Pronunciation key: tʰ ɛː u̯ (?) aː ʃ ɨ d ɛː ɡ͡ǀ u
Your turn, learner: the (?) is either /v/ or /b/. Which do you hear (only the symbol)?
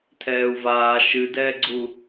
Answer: v